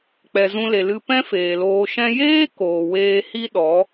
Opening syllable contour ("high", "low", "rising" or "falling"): low